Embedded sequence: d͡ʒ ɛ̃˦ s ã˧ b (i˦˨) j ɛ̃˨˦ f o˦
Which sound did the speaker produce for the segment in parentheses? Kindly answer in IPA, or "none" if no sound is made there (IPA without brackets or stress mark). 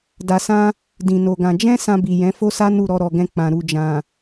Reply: i˨